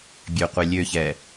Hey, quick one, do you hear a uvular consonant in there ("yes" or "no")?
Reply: yes